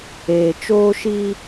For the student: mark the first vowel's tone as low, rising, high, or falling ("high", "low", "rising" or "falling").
low